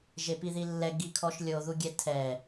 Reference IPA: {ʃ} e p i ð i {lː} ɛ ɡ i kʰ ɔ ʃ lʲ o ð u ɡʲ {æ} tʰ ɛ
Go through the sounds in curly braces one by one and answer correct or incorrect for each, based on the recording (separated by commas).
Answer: incorrect, correct, incorrect